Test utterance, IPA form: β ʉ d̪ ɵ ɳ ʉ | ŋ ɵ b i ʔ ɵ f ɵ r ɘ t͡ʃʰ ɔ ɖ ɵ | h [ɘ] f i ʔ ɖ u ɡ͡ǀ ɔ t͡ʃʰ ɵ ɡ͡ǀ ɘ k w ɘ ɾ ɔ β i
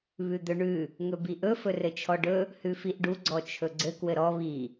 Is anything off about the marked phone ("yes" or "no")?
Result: yes